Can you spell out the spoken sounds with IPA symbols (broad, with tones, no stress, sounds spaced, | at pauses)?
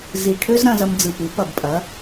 z i˨˩ ʈʰ ø˥ z ɾ ɐ̃˧ z ɐ˧ m d͡z ɯ˨˩ p ɯ˩˥ p ɐ˨˩ b pʼ ɐ˩˥